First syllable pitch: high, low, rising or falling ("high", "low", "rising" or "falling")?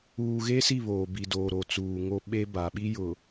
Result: low